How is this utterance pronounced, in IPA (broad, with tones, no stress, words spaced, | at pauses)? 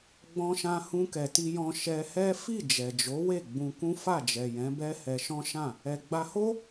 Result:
ɡ͡bɔ̃˧ʃã˧ hũ˧kɛ˨ti˧jɔ̃˧ ʃɛ˧hɛ˦ fi˦˨d͡ʒɛ˨d͡ʒo˨˦ we˦˨ɡ͡bũ˧kũ˦ fa˦˨d͡ʒɛ˨jɛ̃˨˦bɛ˦ hɛ˧ʃɔ̃˦ʃã˦˨ | ɛ˨ɡ͡ba˧ho˦